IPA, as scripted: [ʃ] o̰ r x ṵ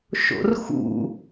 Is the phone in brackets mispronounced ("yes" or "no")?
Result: no